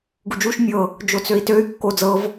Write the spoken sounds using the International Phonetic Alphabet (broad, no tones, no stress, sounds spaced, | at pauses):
ɡ u d͡ʒ u ʃ mʲ ɤ | d͡ʒ o t͡s ø i̯ t ø y̯ kː o d͡z ɤ v